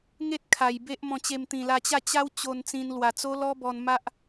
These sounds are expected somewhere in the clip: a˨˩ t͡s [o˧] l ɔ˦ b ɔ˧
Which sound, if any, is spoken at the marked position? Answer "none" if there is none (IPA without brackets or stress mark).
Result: o˦